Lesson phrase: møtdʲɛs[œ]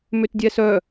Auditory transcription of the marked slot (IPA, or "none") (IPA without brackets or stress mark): œ